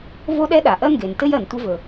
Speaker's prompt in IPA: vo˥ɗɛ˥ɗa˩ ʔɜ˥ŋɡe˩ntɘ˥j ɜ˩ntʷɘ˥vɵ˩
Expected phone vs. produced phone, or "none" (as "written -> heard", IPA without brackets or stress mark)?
none